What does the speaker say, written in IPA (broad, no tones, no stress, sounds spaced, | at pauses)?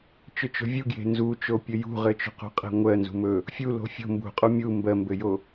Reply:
t͡ʃ ɵ t͡ʃ o̤ vʲ u ɡ j e̤ n z u t͡ʃ o pʲ ɵ j ṳ ʁ ɘ t͡ʃ o̤ q ṳ qʼ e̤ ŋʷ ɜ n z ṳ m ɵ | fʲ u l o̤ fʲ o̤ m b ṳ qʼ u mʲ u m b ɜ m b ɘ j o